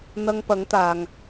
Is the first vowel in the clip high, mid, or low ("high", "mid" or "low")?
low